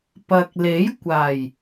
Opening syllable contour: low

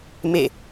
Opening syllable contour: falling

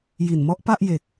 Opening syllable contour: low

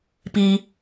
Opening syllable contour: high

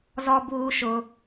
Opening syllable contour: high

